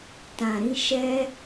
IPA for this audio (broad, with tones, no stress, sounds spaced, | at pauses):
t ã˨ ɾ ĩ˧ ʃ ɛ˧